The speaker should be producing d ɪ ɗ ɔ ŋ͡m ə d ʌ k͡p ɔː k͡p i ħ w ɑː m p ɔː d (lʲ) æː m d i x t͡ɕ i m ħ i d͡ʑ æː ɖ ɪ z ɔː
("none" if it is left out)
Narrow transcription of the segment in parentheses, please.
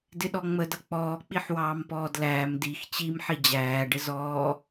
l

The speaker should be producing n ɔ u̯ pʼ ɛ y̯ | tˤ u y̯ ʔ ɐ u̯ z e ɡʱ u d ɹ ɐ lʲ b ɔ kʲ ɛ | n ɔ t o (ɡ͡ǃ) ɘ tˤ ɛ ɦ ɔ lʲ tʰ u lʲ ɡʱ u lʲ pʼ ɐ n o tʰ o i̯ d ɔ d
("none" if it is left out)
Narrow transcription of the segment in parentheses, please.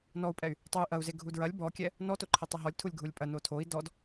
ǃʰ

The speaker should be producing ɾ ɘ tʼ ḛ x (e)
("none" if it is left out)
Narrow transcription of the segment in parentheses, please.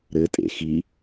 i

